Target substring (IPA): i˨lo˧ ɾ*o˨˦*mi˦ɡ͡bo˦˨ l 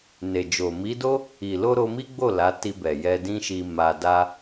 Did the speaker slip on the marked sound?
yes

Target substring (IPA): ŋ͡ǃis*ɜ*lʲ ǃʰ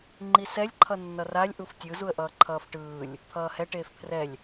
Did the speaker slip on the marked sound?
yes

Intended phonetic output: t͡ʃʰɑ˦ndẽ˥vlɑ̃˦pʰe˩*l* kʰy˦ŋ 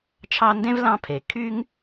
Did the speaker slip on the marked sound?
yes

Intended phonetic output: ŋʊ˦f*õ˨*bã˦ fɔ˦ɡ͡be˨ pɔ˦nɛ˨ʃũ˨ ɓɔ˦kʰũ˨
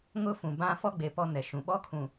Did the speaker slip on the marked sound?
yes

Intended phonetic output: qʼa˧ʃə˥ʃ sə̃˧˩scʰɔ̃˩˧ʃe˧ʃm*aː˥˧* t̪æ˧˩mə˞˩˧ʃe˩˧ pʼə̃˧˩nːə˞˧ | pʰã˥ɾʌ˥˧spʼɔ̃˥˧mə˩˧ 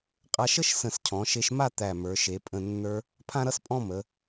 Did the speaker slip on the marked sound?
yes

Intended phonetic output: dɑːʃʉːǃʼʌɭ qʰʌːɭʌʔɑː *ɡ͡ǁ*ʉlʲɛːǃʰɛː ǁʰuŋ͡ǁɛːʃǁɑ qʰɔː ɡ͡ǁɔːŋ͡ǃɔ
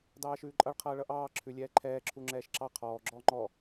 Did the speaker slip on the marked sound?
yes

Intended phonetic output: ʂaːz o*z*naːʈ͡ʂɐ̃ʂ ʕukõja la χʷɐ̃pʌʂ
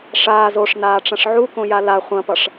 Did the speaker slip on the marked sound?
yes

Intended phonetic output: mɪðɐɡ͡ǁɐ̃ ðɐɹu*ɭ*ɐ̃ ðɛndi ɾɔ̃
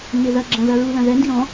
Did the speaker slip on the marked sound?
yes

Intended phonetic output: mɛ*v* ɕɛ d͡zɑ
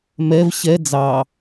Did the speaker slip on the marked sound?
no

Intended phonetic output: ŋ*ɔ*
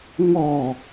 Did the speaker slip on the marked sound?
no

